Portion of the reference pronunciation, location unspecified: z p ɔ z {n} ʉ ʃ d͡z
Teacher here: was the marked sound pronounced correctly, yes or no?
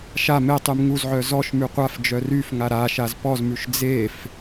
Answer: no